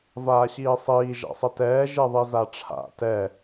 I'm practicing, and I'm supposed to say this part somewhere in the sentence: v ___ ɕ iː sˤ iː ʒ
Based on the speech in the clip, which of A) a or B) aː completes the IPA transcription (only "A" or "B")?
B